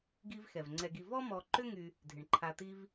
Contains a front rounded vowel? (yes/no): yes